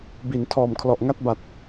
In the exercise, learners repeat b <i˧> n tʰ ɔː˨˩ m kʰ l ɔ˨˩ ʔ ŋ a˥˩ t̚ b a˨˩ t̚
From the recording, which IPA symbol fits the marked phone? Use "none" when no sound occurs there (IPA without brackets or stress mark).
i˨˩